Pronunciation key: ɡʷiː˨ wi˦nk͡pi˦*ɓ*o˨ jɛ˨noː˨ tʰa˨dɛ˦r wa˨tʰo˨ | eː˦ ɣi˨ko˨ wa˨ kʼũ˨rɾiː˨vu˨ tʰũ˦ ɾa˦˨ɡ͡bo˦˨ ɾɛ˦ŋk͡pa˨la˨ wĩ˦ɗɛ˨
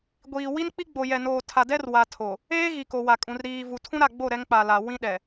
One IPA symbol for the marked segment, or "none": ɡ͡b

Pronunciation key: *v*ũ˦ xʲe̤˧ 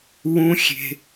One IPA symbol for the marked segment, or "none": w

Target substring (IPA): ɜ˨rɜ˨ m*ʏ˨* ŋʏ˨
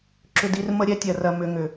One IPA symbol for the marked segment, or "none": ʏ˨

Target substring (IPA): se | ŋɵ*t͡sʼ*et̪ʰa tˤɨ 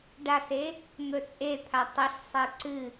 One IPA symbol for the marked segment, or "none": t͡sʼ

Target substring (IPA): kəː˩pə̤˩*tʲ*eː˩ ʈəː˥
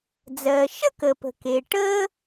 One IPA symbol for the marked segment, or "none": k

